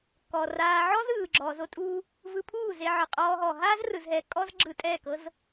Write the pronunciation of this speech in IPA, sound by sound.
k ɔ˨ r aː˧ ʕ ɔ˦ z ɯː˨ ɡ͡ǁ ɔː˨ z o˦ tʼ uː˦ | v ɯ˧ pʰ uː˦˨ z e˧ ʕ ɯ˨ qʼ ɔː˧ ɦ ɔː˨ ɦ aː˦ z r ɯ˨ z ɦ ɛ˨ kʼ ɔ˦ z ɡ͡ǁ ɯ˧ tʼ ɛː˦˨ k ɤ˦ z

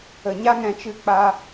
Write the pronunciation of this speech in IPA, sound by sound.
ə˨ ɲ a˦ ŋ ɛ̃˨ t͡ʃ ɨ˧ k͡p a˧

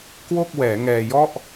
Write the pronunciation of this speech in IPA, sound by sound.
k w o˥˩ k̚ w ɛː˩˦ ŋ ɛː˧ j ɔ˥˩ ʔ

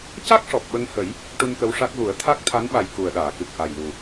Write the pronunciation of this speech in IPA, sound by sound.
c a˦˥ k̚ ʂ ɔ˨˩ p̚ ɓ ə˧ ŋ h ə˨˩˦ j | ʈ u˧ n k ə˧˥ w ʂ a˦˥ k̚ ɣ u˨˩˦ ə̯ t̪ʰ a˦˥ k̚ t̪ʰ a˧˥ n ɓ a˨˩ j k u˨˩ ə̯ ɗ aː˨˩˨ k ɨ˨˩ k̚ ʔ a˨˩ j l u˨˩

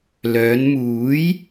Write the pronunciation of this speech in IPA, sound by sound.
l œː˨˧ n m uː˨˥ j

